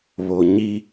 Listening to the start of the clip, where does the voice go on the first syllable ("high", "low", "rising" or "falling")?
low